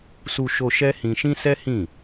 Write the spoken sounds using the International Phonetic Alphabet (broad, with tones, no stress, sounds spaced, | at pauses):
s u˧ ʃ o˧ ʃ ɛ˦ h ĩ˧ ʃ ĩ˦ s ɛ˦ h ĩ˦˨